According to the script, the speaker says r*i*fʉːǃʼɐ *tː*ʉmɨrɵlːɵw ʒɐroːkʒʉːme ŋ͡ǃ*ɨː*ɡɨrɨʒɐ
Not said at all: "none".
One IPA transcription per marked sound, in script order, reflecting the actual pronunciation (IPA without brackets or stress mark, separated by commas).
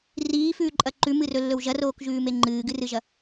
iː, ǃ, ɨː